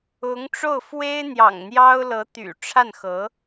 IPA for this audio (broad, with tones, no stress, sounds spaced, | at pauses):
ʊ˧˥ ŋ ʈ͡ʂ o˥˩ ʊ̯ f w e˥ ɪ̯ n̪ j ɑ̰˨˩ ŋ n̪ j ɑ˥ ʊ̯ l ɤ˧˥ t̪ y̰˨˩ ʈ͡ʂʰ a˥˩ n x ɤ˧˥